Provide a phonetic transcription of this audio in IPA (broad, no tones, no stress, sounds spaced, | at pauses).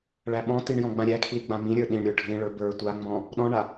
ɭ æ ɓ ɔ̃ t i ɳ j ɔ̃ ɡ͡b ã ɾʲ æ kʰ l i ɡ͡b ã m ĩ ɾʲ ə˞ ɗ ĩ ɳ ɾʲ ə˞ ɖʱ ĩ ɭ ə˞ b ə˞ tʷ a ŋ͡m ɔ̃ | ɗ ɔ̃ ɳ a